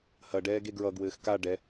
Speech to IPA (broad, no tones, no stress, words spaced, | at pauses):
hɐ ɖɛːɡeɡɹʌɡwɘːx ka ɖɛ